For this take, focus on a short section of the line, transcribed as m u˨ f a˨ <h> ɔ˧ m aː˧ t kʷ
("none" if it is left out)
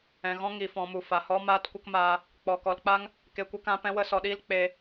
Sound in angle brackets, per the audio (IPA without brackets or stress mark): h